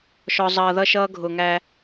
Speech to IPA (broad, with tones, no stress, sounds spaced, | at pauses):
ʃ ɔ˨ zˤ ʌː˨ ð ʌ˦ ʃ ʌː˦ ɡʱ ʊː˨ ŋ æː˦